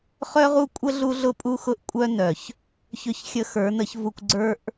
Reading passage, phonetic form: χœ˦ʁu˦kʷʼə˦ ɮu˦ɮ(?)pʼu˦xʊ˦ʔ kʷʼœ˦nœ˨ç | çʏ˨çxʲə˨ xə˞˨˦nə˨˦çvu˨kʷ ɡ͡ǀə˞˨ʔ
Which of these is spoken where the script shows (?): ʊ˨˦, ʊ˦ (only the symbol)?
ʊ˦